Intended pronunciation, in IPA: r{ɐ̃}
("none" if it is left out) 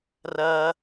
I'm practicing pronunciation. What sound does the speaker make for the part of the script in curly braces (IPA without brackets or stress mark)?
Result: ɐ